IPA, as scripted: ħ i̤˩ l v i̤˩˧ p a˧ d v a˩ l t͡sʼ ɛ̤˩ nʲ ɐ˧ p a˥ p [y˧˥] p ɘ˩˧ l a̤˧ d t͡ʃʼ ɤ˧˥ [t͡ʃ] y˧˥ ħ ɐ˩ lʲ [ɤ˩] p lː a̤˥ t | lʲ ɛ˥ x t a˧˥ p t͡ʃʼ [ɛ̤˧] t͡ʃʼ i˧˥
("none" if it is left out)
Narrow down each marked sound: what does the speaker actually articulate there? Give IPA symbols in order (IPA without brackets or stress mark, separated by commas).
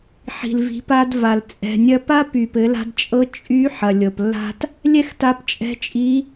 y˩, t͡ʃʼ, ɤ˩, ɛ̤˧˥